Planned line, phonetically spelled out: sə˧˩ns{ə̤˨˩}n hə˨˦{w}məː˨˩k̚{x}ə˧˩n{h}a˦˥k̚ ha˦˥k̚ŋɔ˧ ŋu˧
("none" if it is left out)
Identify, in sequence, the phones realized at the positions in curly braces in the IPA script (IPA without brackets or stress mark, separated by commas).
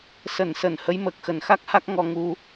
ə˧˩, j, x, x